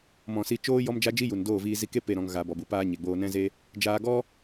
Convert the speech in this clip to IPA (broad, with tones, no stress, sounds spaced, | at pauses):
m ɔ̃˨ s i˧ t͡ʃ oː˦ j ɔ˦ m d͡ʒ a˦ d͡ʒ i˦ j u˨ n d oː˦˨ v iː˧ z i˧ k e˦ p e˦˨ ɾ ɔ̃˧ ŋ ɣ a˧ b ɔ˨ b u˧ p aː˦ ɲ e˨ ɡ͡b oː˧ n ɛ̃˦ z e˦ | d͡ʒ aː˧ ɡ ɔ˦